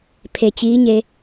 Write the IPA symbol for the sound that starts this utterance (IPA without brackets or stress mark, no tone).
pʰ